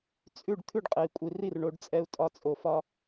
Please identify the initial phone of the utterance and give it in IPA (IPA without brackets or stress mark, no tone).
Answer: t͡sʼ